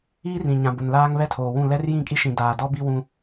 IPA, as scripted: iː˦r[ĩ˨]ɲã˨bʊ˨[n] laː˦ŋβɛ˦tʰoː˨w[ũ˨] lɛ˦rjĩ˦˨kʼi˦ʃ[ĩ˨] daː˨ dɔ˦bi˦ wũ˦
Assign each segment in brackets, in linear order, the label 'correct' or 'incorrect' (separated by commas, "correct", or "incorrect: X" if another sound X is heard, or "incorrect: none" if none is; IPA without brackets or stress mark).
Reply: correct, correct, incorrect: ũ˦˨, correct